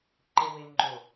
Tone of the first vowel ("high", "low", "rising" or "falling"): low